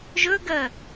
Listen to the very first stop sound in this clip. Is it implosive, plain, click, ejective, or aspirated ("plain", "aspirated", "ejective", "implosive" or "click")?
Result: plain